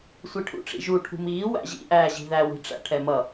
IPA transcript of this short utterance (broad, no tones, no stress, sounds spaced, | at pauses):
sʷ i ʈʰ ṵ ʈ͡ʂ ḭ ʒ u ʈʰ ṳ m iː w æ̰ ʑ ḭ ʔ æː ʑ i̤ ð æ w i̤ ʈ͡ʂ æ̰ ʈʰ ɛ m ʌ